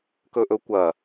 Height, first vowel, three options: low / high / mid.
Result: mid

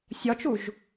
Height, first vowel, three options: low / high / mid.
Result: low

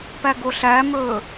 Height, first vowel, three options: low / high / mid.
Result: low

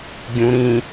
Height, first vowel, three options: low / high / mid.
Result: high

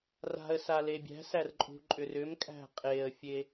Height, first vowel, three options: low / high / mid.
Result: low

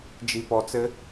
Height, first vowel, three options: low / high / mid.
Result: high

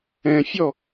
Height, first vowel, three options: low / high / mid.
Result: mid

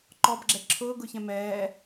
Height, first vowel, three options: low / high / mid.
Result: mid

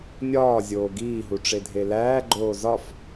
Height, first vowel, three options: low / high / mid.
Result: low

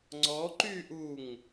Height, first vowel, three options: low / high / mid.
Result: mid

